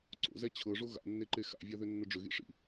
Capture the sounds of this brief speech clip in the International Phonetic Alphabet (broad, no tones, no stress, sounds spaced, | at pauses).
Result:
ǀ o̰ z ɛ t͡ɕʰ ɤ ʐ o ɣ a̰ nː e ǃ e x a̰ vʲ a ð ʏ nː ʊ ɖ͡ʐ ʏ ɣ ḭ ʂ ḭ